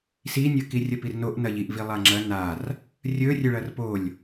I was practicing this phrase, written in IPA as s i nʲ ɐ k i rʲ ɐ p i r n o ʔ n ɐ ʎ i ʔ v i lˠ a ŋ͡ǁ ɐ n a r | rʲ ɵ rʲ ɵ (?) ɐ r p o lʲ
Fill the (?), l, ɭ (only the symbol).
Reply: ɭ